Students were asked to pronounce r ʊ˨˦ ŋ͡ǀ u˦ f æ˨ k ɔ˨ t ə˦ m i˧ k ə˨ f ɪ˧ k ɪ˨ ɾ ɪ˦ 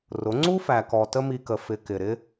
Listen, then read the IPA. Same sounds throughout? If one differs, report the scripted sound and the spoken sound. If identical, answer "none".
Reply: none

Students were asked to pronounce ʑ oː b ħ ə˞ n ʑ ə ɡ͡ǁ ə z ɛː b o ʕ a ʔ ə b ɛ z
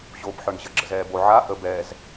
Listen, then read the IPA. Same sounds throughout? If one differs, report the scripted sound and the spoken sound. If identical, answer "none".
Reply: none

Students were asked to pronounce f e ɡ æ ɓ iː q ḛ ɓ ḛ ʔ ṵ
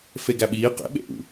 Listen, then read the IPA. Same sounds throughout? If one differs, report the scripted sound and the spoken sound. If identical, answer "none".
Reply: none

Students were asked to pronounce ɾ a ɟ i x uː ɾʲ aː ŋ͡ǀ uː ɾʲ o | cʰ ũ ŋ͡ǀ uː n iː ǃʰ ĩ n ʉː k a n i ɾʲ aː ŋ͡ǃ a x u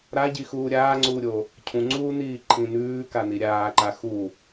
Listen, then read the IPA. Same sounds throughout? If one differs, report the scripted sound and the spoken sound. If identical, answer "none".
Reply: ŋ͡ǃ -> ǃ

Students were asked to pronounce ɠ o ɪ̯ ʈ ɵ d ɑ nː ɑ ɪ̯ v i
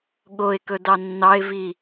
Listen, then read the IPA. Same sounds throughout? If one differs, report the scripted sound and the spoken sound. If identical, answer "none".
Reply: ʈ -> k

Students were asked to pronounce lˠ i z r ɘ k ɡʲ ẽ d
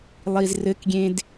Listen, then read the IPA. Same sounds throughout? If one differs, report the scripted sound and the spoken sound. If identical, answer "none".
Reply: none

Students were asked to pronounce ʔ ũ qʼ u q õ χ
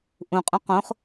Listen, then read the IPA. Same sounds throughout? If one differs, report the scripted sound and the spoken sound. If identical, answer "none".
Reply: u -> ũ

